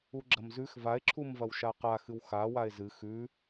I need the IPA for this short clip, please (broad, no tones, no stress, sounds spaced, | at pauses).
u ɡ͡ǁ ɐ m z ʉ x v a e̯ ǁʰ u m v ɐ w ʃ a q a x ɨ w x a w a e̯ z ɨ x ʉ